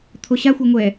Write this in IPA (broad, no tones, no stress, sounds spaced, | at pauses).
t̪ʰ o ɕ a xʷ ʌ ŋʷ ɛ